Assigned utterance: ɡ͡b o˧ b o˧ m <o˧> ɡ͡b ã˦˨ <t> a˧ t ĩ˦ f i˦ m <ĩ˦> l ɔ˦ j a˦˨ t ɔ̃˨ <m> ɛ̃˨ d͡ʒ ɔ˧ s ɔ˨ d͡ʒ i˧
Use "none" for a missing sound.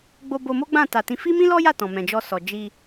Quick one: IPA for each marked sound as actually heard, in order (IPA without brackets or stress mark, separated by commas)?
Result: o˦, t, ĩ˦, m